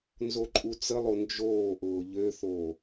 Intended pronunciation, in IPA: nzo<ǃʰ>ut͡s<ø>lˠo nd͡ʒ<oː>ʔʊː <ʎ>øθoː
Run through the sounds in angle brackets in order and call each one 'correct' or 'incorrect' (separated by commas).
incorrect, incorrect, correct, correct